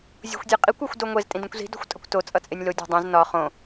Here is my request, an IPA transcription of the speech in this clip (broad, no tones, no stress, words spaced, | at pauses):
zʲo̤xʷdʲeqʼikʷ ɒxʷdoŋʷez tʼĩdĩkʷzi̤ do̤xʷtʼʌkʷto t͡sʼʌt͡sʼenʲlo dʲo̤dˤĩz nɒ χõ